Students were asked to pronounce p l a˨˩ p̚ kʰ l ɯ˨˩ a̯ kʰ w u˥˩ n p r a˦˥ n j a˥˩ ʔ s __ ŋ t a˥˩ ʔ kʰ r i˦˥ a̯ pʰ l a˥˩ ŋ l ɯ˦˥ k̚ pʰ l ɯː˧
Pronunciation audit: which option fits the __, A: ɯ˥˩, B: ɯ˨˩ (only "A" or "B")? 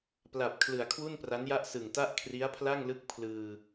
B